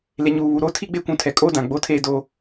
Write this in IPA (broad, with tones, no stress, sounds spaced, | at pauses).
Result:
l e˨ ɲ uː˨ β u˨ ɾ o˦ tʰ i˦ ɡ͡b e˦ kʷ ũ˨ tʰ ɛ˨ kʼ oː˦ d ã˨ ɡ͡b o˦ tʰ eː˦ d oː˦